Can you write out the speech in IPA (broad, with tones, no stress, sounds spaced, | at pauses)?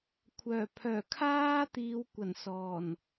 kʷʰ œː˨˩ pʰ œː˨˩ kʰ aː˥ t̪ iː˨˧ w kʷ ɐ˨˩ n s ɔː˨˩ n